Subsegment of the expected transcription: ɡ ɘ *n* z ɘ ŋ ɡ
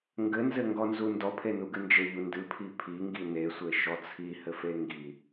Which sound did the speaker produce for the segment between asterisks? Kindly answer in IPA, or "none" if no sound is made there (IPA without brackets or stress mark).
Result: n